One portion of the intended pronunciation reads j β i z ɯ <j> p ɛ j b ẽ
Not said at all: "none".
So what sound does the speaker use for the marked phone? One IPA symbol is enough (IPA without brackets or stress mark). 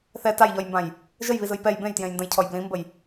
j